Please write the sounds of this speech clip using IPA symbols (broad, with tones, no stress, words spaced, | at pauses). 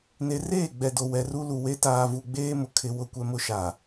ne˨reː˦˨ɡ͡bɛ˨do˨ wɛ˨ru˦ lu˨we˦ taː˨vu˨ɡ͡beː˦mʊ˨ kʰɪ˦ wʊ˦˨kʷɛ˦mʊ˦ ʃa˨